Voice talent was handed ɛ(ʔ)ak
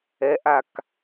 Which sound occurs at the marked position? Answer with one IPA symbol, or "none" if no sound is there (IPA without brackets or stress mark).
ʔ